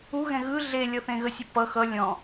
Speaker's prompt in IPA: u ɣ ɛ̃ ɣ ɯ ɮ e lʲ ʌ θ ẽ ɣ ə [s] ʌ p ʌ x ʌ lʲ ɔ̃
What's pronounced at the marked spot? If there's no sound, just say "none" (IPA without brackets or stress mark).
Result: sʲ